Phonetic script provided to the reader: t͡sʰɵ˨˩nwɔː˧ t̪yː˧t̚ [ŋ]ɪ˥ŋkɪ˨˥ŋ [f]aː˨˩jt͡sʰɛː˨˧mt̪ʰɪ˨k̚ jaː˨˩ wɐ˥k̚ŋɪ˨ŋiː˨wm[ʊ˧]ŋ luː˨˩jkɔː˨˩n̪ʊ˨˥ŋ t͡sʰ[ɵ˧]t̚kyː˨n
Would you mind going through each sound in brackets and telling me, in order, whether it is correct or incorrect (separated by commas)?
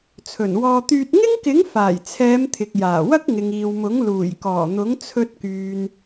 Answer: correct, correct, incorrect, correct